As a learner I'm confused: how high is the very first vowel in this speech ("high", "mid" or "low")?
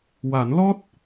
low